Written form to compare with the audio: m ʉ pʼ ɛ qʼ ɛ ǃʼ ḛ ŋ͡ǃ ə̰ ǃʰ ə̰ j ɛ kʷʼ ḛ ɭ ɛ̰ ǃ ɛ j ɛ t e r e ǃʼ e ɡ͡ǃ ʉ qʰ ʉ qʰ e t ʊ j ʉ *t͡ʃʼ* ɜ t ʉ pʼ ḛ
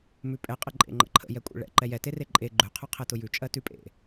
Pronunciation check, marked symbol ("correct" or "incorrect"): correct